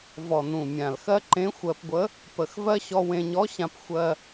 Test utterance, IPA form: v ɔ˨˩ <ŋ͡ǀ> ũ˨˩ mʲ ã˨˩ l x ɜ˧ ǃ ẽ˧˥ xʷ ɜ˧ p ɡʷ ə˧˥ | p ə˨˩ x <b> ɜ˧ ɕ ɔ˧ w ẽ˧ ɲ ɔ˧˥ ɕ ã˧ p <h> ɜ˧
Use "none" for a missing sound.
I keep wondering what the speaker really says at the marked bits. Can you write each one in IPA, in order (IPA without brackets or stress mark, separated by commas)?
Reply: n, v, xʷ